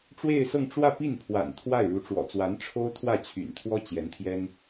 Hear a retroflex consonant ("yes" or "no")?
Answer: yes